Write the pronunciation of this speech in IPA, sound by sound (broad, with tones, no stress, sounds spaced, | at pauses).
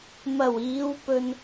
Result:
m ɐ˨˩ w iː˨˧ w p ɵ˨ n